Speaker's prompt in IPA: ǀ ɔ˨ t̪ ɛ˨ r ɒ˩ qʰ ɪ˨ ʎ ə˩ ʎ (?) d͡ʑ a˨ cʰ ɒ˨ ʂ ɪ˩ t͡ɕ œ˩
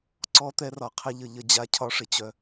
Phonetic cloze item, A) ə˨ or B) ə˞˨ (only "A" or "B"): A